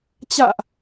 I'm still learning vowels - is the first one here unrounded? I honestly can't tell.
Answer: yes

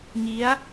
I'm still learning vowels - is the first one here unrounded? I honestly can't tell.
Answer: yes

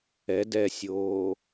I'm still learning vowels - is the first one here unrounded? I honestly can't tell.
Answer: yes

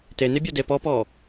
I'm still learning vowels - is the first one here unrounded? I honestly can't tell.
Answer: yes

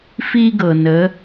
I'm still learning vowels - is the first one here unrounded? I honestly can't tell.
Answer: yes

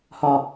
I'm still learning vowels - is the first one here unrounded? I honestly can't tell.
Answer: no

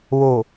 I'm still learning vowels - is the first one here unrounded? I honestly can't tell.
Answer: no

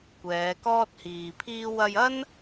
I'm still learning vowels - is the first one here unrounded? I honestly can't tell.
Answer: yes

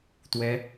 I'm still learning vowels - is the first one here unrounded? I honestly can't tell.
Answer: yes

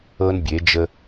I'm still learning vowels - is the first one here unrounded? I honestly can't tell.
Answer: yes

